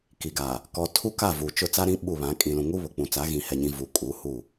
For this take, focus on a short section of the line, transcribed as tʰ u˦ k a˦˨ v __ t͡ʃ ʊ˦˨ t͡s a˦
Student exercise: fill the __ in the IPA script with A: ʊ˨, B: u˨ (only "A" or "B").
B